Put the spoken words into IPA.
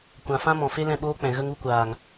kʷã˨fã˦mɔ̃˨ fe˦lɛ̃˦˨ɓoː˦k͡pɛ̃˨ ɣə˦ŋ u˧kʷaː˨ŋ

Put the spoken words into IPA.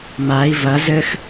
mai̯ vɐ zɘx

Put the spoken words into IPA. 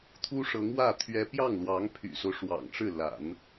t̪ʰu˥ʂɤ˧˥ŋwä˥˩ t̪ʰɥɛ˥ pjɑ˥˩ŋlwɑ˧˥ŋpʰy̰˨˩so˦ʊ̯ ʂwɑ̰˨˩ŋʈ͡ʂɻ̩˥˩la̰˨˩˦n

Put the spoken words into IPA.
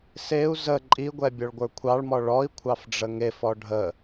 seu̯ zə ǃʼiɡʷɛ bʲɔɭɡʷə˞kʷʰɑɭmɔ ɭɔi̯ kʷʰɑfɖ͡ʐəŋefɔ ɖʱə

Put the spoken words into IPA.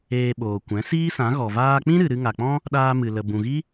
eː˧ɓoː˨ kʷɛ̃˨˦ siː˦sã˨˦ɣɔ˨ vaː˧k͡pĩ˦ ɾɨ˨ɾɨ˧ŋa˨k͡pɔ̃˦ | ɗaː˧mɨ˨lə˨ bũ˨ɣi˦

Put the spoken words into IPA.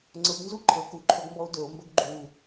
ŋ͡ǀɤɡnzu ǃʰɤ kuǃʰɵɡmbɔo̯ dɵo̯mbɵɡ ɡ͡ǃu

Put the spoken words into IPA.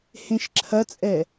hẽʃǁʰɐt͡sʼɛ

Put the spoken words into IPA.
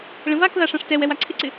ɭə̃vakða ʂãʂtɛwɛw aǀʰɪǀɪ

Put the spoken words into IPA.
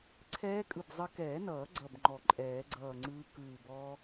ǀʰɛː˦˥kʼɯ˧˩b zˤə˦˥ kɛː˨˩˦nʌː˨˩˦ ɡ͡ǀʌ˧˩bŋ͡ǃɔ˨˩˦ǃʼɛː˨˩˦ ɡ͡ǀʌː˧˩ŋ͡ǀɯː˦˥ kɯː˧˩bɔː˦˥

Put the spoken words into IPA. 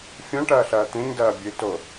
fʲõʈɐːɬɐː t̪ẽɲdɐː bʲɨto

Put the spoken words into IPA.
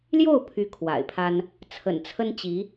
ljo˥˩ʊ̯ pʰy˥kʰwa̰˨˩ɪ̯pʰa˥n | t͡sʰə̰˨˩nt͡sʰə˥nt͡ɕi˧˥

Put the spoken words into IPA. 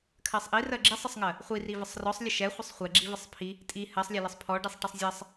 kʰɜsˤʔirɜ ɡ͡ǁisˤəsˤŋɜ | χʷiri vəsˤrɔsˤ lʲəʃɛχʷəsˤ χʷɛɡ͡ǁivəsˤ pʰi | tʼi hɜsˤlʲɛləsˤ pʰɔ ɖisˤʈəsˤzʲɜsˤ

